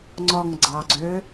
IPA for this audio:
ŋ͡ǀ ɔ ŋ ɡ͡ǀ ɑ ɡ͡ǀ ø

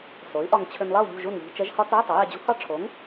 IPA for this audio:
s o˩˥ y̯ ʔ ɒ˧ ŋ t͡ɕʰ ʏ˧ n lˠ ɐ˥˨ u̯ ʎ ṳ˥˨ ʒ u˥˨ n ʎ i̤˧˥˧ t͡ʃ ɛ˦˥ ʒ h ɒ˦˥ t͡s ɒ˧˥˧ y̯ tˤ ɐ˩˥ j ɛ˧ d͡ʑ ṳ˦˥ h ɒ˥˨ ʈ͡ʂʰ o˩˥ ŋ

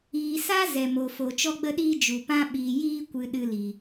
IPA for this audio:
iː˨ s a˦ z ɛ˨ m o˨ f o˨ t͡ʃ ɔ˧ ɡ͡b ə˧ ɗ iː˧ d͡ʒ u˨ p ã˦ ɓ iː˨ j iː˧ kʷ ɨ˨ ɗ ɨ˧ l i˨

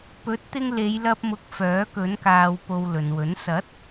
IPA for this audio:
p ɵ˨˥ t̚ t̪ ɪ˧ ŋ l e˨˧ j l ɐ˧ p̚ m ʊ˨˥ k̚ f œː˨˥ k ɵ˨˥ n k aː˧ w p o˧ w l ɵ˨ n w ɵ˨˥ n s ɐ˨˥ t̚

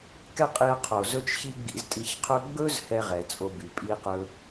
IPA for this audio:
k ɛ˥ qʼ i˧ ɐ̯ qʰ o˩ z ɵ˥ t͡ʃ ç i˥ ɡ͡b ḭ˧ z tʼ i˧ ç qʰ ɵ˥ ɡ͡b ɵ˥ z h ɛ˥ ʁ ɛ˩ t͡sʼ o˧ b y˩ pʼ i˥ q ɵ˥

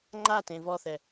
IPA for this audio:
ŋ͡ǃ a t ẽ v ɔ θ ɛ

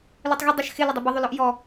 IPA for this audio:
l ɵ tˤ ɣ ə dˤ ə ʃ x ɪ l ɵ dˤ ɵ b ɪ ðˤ ɵ l ɔ ʔ j ɔ

